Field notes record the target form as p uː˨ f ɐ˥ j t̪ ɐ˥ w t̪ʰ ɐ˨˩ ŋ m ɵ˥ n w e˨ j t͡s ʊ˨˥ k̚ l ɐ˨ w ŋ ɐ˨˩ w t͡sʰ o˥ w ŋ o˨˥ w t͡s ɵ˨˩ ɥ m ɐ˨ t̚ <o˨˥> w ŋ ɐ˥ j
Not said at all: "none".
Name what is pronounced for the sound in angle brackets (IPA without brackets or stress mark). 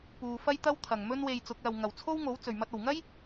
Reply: o˨˩